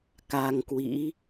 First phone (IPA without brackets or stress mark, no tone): k